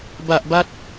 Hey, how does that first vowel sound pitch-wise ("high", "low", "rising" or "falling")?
low